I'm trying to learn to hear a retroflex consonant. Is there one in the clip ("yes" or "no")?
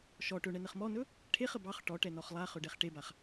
yes